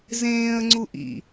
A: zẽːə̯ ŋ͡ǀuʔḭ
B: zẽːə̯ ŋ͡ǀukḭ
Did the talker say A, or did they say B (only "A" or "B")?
A